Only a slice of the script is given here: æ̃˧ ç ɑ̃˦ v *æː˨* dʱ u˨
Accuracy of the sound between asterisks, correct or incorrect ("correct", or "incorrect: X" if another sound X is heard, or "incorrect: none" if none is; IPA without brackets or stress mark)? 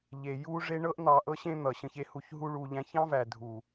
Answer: incorrect: æ˨